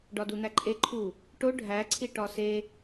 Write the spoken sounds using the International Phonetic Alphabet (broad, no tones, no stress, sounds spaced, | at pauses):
ɖ ɒ d u n̪ æ ǃʼ e ǃʰ u | ʈ o ɖʱ æ ǀʰ i ʈ ɒ s e